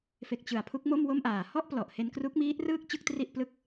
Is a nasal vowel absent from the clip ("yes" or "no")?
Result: yes